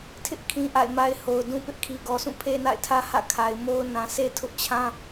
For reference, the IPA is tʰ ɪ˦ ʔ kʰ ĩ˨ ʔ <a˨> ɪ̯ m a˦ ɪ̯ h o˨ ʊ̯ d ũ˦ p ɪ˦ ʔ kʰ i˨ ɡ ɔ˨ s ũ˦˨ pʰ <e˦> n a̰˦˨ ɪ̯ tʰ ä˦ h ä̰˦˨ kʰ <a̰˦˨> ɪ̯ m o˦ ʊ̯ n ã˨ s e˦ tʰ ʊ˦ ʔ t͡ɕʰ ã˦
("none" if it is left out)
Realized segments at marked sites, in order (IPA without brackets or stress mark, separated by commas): a̰˦˨, e˦, a˨